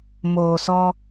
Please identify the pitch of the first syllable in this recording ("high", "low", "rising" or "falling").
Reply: low